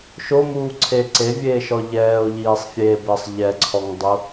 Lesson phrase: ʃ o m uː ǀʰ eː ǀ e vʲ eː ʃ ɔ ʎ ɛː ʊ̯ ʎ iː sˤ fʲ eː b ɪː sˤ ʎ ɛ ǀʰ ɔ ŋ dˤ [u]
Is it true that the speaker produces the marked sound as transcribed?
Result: yes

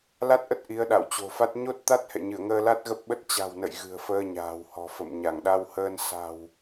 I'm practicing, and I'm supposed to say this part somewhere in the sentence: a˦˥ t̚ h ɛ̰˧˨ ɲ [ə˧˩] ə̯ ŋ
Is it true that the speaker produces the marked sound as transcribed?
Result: no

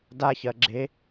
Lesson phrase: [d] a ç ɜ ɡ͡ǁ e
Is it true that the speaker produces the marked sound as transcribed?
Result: yes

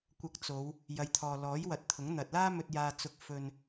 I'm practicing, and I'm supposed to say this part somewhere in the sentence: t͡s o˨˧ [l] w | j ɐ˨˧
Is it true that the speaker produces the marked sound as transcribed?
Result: no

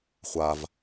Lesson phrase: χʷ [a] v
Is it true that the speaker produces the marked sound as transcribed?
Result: yes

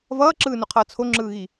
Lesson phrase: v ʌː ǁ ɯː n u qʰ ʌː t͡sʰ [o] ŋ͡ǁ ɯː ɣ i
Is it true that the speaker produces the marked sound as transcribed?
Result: yes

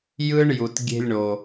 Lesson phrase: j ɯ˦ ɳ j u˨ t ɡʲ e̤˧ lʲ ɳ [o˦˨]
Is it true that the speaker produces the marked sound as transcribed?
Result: no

